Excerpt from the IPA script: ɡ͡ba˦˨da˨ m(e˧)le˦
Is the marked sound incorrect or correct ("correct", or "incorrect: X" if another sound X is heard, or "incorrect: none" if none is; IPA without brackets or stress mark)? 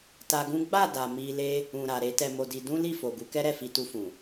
incorrect: i˧